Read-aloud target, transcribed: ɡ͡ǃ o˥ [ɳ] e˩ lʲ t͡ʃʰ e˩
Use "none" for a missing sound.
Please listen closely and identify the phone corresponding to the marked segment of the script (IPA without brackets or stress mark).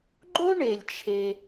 ɳ